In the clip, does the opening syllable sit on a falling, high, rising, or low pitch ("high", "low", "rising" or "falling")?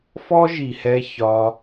high